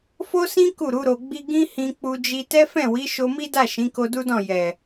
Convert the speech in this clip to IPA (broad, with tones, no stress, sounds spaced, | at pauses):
f o˦ s ĩ˦ k u˦˨ ɾ u˨˦ ɾ o˧ ɡ͡b i˦ ɡ ĩ˦ h ĩ˧ k͡p u˧ d͡ʒ i˧ t ɛ˦ f ɛ̃˦˨ w i˨˦ ʃ o˧ m i˦ d a˦˨ ʃ ĩ˨˦ k o˧ d u˦ d ɔ̃˦˨ j ɛ˨